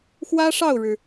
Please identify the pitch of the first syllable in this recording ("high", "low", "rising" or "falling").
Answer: high